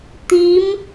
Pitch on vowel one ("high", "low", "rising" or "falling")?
rising